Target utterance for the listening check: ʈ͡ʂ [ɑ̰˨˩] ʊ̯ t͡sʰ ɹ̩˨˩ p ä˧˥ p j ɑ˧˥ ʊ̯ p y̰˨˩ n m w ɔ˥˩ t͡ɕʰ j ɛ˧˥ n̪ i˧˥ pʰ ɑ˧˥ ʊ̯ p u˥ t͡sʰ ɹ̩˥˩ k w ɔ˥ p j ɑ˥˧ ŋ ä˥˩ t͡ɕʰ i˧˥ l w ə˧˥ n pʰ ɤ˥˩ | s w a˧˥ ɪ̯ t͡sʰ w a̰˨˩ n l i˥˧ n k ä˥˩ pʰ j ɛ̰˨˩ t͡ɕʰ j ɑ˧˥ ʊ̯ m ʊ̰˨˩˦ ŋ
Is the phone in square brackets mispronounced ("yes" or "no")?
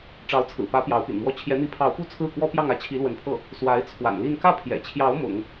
yes